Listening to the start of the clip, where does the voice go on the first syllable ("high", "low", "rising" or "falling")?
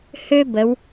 high